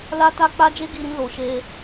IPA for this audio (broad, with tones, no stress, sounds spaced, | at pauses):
l a˦ t a˦ k͡p a˦ d͡ʒ e˦ ɡ i˧ ɾ ĩ˧ l o˨ ʃ e˧